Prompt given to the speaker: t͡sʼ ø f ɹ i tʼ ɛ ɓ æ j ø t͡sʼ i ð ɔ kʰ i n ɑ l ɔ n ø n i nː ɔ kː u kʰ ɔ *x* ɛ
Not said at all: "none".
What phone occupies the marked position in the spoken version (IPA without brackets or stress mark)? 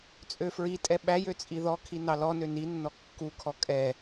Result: kʼ